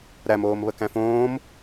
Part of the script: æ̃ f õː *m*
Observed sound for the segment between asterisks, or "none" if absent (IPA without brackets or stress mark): m